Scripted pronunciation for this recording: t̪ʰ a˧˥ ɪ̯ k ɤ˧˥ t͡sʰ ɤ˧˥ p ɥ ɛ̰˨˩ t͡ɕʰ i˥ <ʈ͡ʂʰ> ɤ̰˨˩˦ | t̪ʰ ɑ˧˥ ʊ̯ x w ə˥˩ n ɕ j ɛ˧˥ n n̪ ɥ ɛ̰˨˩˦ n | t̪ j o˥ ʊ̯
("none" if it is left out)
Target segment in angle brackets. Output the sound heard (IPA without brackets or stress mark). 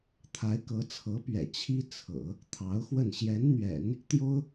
t͡sʰ